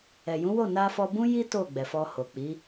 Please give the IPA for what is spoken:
ɛ˨ j ũ˨˦ w o˦˨ n a˧ f ɔ˧ b ũ˦ j i˦ t o˦˨ ɡ͡b ɛ˨ f ɔ˧ h o˨ k͡p i˨˦

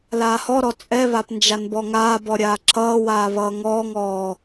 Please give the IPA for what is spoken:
l aː h ɔ ɾ ɔ t͡sʼ ɛ β a p n d͡ʒ a n b ɔ ŋ aː b ɔ ɾʲ aː ǁ ʌː w aː β ʌː ŋ ɔː ŋ ɔː

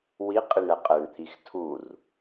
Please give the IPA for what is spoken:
w i qʼ i ɳ ɛ qʼ ɛ ɳ t̪ʰ i x tʰ u r

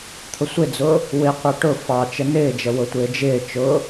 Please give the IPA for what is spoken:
t̪ʰ ʊ sʷ ɪ d͡z ʊː | w ɪ qʷ ɑ ʈ ʊ f ɑ t͡ʃ ə n ɪː d͡ʒ ə w ʊ tʷ ɪː d͡ʒ ɪː t͡ʃ ʊː

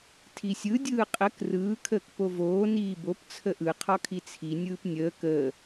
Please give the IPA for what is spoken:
tʰ i sʲ ɯ dʲ ɯː qʼ ə k r ɯː kʰ əː k p o v oː n iː b o p t͡sʰ ə ʔ ɯ qʰ ɔ kʰ i t͡sʰ i nʲ ɯː p nʲ əː k əː

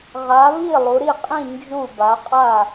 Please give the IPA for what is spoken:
ʁ a˨˦ β i˥˨ lˠ u˨˦ ɾ i˥˨ qʼ ĩ˥˨ n d͡ʒ u˥˨ b a˨˦ qʼ a˥˨

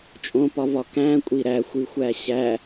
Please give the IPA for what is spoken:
t͡ʃʼ õ p ɒ v ɒ k æ̃ kʷʼ i ɾ æ xʷ i xʷ æ ɕ æ

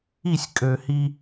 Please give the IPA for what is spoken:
i˦˨ sʲ kʼ ø˨ h i˦

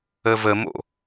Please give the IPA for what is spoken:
ə v ə m o̰

